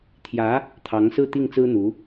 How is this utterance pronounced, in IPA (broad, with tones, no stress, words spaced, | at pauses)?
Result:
t̪ʰjä˧˥ | t̪ʰɑ˧˥ŋsɹ̩˥˧t̪i˥˩ŋ t͡sɹ̩˥n̪u˧˥